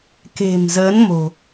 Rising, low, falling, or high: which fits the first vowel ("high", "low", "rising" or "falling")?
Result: low